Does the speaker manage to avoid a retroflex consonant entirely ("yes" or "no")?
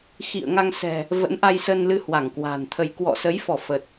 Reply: yes